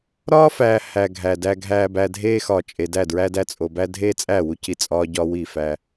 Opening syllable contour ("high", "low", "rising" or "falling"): high